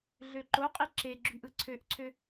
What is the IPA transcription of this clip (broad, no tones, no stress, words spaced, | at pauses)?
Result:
ɮøǃoqʼi ǁeɡ͡ǁyʔ ɯǀʰøʔǀʰø